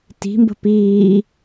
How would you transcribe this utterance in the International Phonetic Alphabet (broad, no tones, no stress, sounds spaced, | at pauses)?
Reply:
t i̤ m b ə̤ p iː